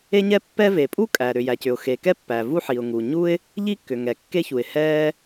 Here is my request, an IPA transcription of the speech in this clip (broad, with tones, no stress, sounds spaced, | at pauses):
e˥ ɲ ɛ˥ pː ɛ˥ v e˩ pʼ u˥ kʼ æ˩ ɾ ʏ˩ j æ˩ c ʏ˩ ʊ̯ x e˩ k ɛ˥ pː æ˩ v u˥ ħ i˩ ʊ̯ ŋ u˩ ɲ u˥ ɪ̯ | ʎ i˥ kː ʏ˩ ŋ ɛ˩ kː e˥ ç u˩ ɪ̯ h ɛ˥